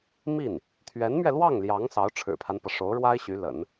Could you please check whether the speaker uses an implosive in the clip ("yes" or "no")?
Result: no